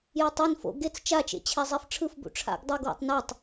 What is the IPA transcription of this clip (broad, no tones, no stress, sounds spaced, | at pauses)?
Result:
j e tˤ ɛ n f o̰ ɡ e t͡s t͡ʃ a t͡ʃ ḛ t͡ɕʰ ɛ zˤ ɛ f ʈ͡ʂʰ ɯ f b ṵ ʈ͡ʂʰ a̰ ɡ dˤ u ɡ w ṵ tˤ n a tˤ